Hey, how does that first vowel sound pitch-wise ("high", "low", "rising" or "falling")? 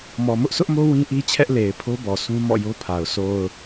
low